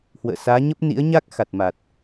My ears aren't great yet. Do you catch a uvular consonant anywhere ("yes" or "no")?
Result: no